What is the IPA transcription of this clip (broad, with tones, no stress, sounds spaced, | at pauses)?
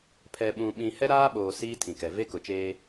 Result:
pʰ ɛ˨ ɓ ũ˨ ɓ ĩ˨ h ɛ˦ ɾ aː˦ ɓ oː˨ s iː˦ tʰ ĩ˨ k ɛ˨ v e˦ k ʊ˨ t͡ʃ eː˦